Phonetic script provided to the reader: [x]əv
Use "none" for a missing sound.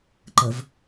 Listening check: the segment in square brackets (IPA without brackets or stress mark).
ǃ